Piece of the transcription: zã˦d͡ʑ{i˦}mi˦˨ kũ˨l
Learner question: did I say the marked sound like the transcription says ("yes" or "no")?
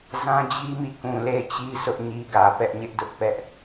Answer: yes